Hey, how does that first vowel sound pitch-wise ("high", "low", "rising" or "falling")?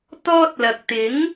high